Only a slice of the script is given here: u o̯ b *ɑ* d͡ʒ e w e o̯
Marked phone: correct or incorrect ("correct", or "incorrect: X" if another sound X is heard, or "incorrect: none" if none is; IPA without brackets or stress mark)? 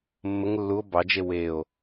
correct